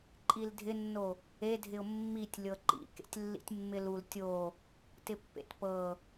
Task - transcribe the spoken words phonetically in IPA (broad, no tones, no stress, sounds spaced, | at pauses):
ǃʼ i l dʱ ɪ nː o | e dʱ ɪ ʊ̯ mː i tʲ lʲ ɤ ǃ ḭ k ḛ tʲ lː ḭ tʲ mː ɪ l u l tʲ o | t ɪ pː ḛ t p ɤ